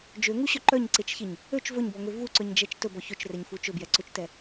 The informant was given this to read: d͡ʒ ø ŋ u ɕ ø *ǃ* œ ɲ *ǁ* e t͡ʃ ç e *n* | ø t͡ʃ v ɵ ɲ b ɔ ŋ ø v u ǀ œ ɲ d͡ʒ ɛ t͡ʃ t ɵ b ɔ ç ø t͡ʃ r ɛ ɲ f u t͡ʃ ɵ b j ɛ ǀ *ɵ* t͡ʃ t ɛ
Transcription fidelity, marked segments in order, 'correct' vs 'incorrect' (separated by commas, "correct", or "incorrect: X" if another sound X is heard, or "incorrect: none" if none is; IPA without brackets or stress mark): correct, incorrect: ǀ, incorrect: ɲ, correct